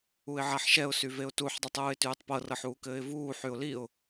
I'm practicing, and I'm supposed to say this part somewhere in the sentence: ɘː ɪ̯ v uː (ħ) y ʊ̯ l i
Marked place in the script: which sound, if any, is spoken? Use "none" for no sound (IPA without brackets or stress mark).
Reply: ħ